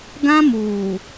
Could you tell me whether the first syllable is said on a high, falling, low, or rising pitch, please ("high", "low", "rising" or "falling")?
high